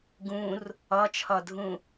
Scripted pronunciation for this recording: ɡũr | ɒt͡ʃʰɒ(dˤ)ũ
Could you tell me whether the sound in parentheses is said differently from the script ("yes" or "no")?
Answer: yes